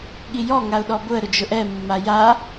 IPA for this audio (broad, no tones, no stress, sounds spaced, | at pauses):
ɠ i j ɔ ŋ a ʊ̯ ɗ ɔ b ʊ ə̯ ɾ ʊ d͡ʒ ʊ ʔ ɛ mː a j a